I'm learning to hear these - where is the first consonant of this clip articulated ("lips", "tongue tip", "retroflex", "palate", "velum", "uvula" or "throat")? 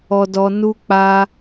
tongue tip